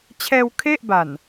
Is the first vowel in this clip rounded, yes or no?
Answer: no